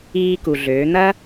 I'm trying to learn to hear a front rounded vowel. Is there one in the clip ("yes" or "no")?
yes